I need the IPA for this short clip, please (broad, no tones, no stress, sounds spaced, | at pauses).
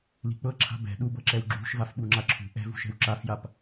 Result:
l i̤ k͡p ɤ ǁʰ a̤ b ɛ̤ ɗ u b ɤ ǁ ɛ w ɡ͡ǁ ṳ ʃ v a f ɓ u ŋ͡ǁ a ǁʰ ṳ ʔ ɛ̤ v ṳ ʃ ɛ̤ w ǁ a f j a p